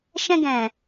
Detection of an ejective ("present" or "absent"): absent